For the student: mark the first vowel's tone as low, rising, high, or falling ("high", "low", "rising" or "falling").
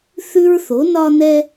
high